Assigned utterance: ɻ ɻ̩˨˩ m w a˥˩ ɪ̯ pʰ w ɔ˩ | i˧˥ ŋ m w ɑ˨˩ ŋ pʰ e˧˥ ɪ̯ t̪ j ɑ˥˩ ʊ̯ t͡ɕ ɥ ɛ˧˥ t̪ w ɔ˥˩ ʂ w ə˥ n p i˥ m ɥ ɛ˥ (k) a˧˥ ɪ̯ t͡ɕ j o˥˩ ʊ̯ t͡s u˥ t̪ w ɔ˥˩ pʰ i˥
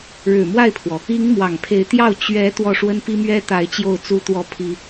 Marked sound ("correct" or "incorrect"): incorrect